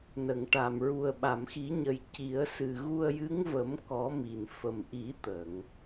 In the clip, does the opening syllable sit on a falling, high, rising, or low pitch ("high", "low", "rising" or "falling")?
low